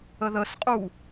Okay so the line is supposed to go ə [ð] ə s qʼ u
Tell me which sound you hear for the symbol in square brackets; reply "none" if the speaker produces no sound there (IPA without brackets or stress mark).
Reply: ð